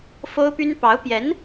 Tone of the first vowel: high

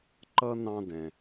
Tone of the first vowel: high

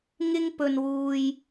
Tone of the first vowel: high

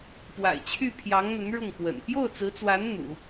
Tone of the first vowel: low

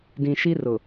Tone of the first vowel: low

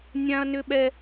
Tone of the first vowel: high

